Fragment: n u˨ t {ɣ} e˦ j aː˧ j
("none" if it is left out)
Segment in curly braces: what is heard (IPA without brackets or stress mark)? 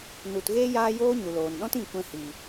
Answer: ɣ